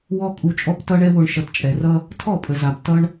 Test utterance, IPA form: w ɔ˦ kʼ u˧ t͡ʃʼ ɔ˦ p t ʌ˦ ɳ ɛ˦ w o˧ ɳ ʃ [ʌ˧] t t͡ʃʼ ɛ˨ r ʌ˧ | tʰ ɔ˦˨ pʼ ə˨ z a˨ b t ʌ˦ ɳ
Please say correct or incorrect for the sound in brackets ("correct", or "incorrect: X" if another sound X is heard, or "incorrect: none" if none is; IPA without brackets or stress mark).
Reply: incorrect: ʌ˨